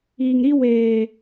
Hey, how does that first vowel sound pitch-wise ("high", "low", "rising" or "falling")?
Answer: low